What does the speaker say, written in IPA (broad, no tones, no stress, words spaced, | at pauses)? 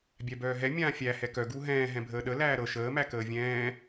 bʲæbœːɦɛ mʲãːfʲæ hɛkœ ɡuɦɛ̃ː ɦɛ̃bʱəːɗə læːɾɤ ʃəː mækəːvʲɛ̃ː